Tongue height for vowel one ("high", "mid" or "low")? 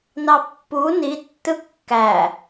low